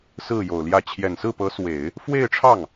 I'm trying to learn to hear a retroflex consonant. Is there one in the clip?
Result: yes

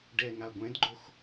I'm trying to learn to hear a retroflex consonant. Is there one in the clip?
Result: yes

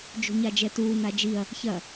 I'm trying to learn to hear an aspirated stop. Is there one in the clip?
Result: no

